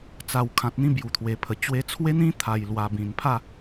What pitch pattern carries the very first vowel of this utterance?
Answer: low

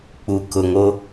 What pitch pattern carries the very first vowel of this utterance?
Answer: low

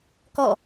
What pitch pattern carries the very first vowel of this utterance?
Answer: falling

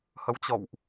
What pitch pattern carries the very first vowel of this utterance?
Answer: rising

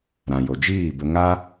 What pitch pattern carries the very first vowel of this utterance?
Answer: low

